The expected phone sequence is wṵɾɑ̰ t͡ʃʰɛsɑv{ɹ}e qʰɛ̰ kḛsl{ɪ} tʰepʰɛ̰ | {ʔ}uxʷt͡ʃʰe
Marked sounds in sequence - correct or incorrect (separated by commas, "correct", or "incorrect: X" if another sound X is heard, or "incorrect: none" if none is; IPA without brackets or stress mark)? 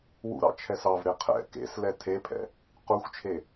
incorrect: ɾ, incorrect: ɛ, incorrect: q